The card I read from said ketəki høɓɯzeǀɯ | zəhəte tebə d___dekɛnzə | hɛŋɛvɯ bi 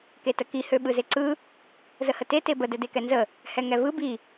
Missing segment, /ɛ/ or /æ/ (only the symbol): ɛ